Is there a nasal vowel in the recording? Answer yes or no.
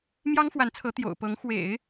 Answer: no